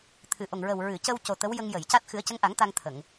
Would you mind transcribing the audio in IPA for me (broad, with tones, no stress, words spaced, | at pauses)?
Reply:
t̪ʰɨ˨˩˨ʔo˨˩ŋɹə˨˩w ɹɨ˨˩˨cə˧wco˨˩ t̪ə˧˥wjə˧ŋjə˨˩˨jca˦˥t̚ xɨ˨˩˦ə̯cə˧˥ŋʔa˨˩˦ŋ t̪a˧ŋt̪ʰə˨˩˨ŋ